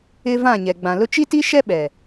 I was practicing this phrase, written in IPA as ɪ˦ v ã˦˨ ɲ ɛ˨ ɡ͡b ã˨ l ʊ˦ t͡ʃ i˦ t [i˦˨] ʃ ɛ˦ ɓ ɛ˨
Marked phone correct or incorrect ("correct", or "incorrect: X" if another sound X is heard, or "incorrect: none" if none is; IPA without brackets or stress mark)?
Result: incorrect: i˦